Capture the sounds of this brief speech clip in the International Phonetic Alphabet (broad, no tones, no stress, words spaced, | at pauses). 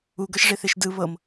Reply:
uɡɤʃʐeθeʃ dɯ βɤm